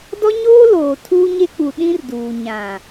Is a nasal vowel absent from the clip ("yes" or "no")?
no